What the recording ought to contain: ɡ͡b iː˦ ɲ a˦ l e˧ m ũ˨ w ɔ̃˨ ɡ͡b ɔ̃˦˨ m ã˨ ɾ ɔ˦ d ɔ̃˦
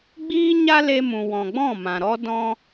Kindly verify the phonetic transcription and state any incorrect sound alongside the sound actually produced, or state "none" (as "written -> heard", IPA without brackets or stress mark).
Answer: none